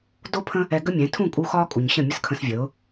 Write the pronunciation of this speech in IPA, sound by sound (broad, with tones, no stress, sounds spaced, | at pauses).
d o˦ pʰ ə̃˦ | ɛ˧ ɡ ə˦ mʲ ɛ̃˨˦ tʰ ũ˦˨ kʼ u˧ x ɒː˦ kʼ u˨ ɲ ɕ ə̃˦˨ mʲ ə˦ s kʰ ə̃˧ s vʲ ə˨˦ ʊ̯